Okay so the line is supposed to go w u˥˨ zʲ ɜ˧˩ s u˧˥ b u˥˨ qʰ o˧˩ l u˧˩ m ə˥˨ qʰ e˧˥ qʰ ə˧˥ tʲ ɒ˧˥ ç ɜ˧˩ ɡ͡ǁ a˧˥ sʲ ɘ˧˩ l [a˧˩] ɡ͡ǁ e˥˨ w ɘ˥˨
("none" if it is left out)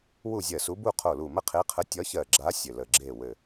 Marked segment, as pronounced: ə˧˩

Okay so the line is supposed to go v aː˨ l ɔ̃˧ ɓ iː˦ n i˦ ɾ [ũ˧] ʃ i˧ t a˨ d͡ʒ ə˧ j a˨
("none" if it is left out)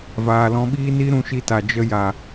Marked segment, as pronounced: ũ˧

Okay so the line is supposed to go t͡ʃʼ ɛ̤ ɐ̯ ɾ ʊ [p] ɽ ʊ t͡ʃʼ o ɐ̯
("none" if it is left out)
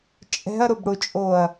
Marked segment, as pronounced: b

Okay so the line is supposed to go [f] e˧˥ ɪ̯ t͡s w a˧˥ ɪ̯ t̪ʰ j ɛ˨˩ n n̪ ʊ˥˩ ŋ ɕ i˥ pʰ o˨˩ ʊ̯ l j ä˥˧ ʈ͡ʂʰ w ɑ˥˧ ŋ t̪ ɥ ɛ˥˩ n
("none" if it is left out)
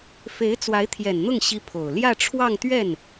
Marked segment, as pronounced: f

